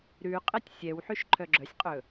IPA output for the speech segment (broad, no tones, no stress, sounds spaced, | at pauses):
ɾ ʉ qʼ ɛ tʲ sʲ ɛ w ħ y ʃ ǃʰ œ ɡ͡ǁ œ sʲ qʼ ɵ